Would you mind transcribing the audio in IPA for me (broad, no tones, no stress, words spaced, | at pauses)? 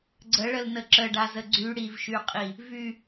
ɡ͡ǀəɭəlnə ǁəɖazə ɡ͡ǀy ɽivʃyqʼi | vy